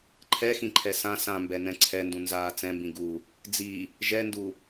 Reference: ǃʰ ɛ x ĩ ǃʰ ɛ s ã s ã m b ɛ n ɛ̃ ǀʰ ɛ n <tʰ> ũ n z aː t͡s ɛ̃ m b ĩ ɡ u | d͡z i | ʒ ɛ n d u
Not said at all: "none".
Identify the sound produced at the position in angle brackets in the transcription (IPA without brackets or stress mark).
d